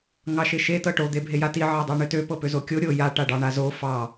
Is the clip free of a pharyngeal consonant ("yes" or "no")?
no